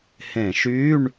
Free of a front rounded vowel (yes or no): no